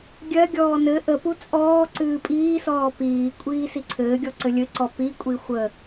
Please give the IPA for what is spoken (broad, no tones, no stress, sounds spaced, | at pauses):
ɡʲ ɜ ɡʲ ɔː n ɘ ʔ ə p u t͡sʼ ɔː ǀ ɨː pʼ iː s ɔː p iː kʷʼ iː s i ǀʰ ɘː ɡʲ ɔ ǀ ɘ lʲ ɘ ǀ ɔ p i kʷʼ i xʷ ə